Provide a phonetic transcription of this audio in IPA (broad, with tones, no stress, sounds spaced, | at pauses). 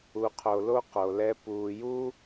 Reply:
u˨ qʰ o˨ l o˦ q o˨ l ɛ˦ p uː˨ j u˦